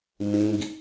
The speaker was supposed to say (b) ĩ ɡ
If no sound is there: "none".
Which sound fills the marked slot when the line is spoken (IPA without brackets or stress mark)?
m